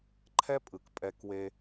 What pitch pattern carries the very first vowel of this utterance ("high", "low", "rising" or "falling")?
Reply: high